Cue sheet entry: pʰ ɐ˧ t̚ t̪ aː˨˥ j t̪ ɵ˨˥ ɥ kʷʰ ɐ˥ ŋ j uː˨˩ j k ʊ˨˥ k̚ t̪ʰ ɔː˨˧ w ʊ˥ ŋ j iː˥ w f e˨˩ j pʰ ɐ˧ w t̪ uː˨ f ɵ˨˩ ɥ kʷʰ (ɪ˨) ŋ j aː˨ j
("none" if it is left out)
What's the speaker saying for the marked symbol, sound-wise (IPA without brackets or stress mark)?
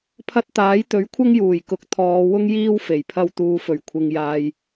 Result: ɪ˨